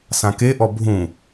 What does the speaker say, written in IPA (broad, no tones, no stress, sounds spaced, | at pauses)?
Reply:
s ã k e ʔ ɔ bʱ ũ